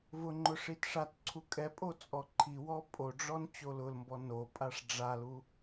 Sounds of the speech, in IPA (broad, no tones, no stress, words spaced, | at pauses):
vʊŋ͡ǃʊ ʂitʂatǀʰu kʼɛpʼo t͡sʼɔǃʰiwɔ pʼoɖ͡ʐɔn t͡ɕolʊlmbɔ no pʼaʂɖ͡ʐalu